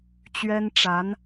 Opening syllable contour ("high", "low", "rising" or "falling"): high